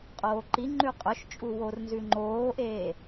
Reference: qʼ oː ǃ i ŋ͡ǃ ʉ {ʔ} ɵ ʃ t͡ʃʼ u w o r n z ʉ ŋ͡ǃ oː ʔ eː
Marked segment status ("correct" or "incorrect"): incorrect